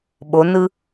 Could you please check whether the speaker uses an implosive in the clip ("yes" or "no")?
yes